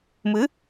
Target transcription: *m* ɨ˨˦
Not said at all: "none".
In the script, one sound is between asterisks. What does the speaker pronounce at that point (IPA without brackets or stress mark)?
m